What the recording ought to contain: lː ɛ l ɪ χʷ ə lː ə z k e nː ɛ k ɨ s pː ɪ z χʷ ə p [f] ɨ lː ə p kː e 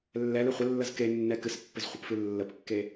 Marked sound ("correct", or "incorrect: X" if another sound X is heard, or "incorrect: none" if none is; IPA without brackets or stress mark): correct